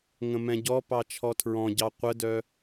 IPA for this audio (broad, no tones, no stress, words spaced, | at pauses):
ŋə̃mɛ̃ɟɔpɑ t͡ʃʰɔtʰɹɔ̃ɟɑ qʷədœ